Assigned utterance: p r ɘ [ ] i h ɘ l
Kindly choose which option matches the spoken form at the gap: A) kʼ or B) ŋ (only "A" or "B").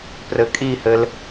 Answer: A